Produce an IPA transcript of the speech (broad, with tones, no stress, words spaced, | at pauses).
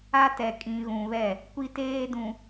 a˦tɛ˨ kʼĩ˨ɣũ˨βɛ˦˨ | kʷi˦teː˦dũ˨